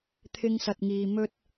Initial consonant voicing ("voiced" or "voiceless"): voiceless